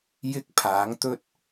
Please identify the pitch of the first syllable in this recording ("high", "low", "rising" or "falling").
high